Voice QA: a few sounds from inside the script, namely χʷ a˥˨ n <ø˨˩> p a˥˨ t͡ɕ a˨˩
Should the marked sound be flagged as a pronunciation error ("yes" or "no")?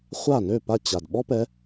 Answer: yes